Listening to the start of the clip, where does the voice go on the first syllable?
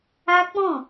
high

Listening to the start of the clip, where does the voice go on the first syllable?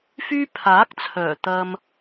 high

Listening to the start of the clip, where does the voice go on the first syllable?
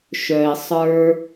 low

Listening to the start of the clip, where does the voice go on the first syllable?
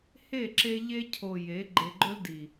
falling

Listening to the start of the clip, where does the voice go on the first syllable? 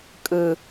low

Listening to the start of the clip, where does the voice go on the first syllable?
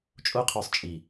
high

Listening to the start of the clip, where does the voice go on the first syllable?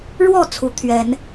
falling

